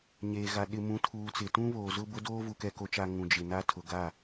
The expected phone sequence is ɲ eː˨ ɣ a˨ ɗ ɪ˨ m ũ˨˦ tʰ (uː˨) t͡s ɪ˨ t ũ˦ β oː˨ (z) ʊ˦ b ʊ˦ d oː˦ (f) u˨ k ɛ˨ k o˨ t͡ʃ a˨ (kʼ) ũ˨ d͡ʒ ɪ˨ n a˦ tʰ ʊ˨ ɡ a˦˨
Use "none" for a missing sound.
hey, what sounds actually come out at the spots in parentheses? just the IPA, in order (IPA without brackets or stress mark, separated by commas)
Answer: uː˨, z, v, ŋ